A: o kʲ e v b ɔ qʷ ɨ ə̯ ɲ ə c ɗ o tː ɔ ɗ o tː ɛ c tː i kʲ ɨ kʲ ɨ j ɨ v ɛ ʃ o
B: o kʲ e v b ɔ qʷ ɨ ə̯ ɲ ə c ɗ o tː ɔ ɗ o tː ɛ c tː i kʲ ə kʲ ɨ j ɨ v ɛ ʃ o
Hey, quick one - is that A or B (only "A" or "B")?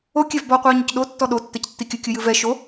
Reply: A